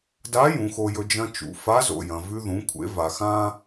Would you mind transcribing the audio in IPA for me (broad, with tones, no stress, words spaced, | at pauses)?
da˧˥ jũ˩˧xo˧jɵ˧ d͡ʒɐ̃˧t͡ʃṵ˩ fa˧˥zo̰˩jɐ̃˩ vʉ˧ðũ˩˧kʷʰḛ˩˧ va˩xã˧